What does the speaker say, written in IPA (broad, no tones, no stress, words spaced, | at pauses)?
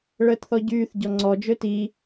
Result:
ɭəːtθɔɟyːθ ɟɔŋ͡ǀɔ d͡ʒøti